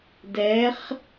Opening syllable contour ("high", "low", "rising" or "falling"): rising